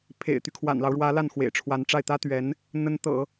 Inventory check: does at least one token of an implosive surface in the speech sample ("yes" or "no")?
no